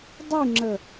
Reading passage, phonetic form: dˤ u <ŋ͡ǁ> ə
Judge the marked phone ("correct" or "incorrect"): correct